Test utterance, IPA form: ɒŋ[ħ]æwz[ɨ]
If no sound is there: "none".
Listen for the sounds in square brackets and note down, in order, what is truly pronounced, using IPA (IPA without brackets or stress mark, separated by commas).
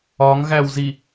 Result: ɣ, i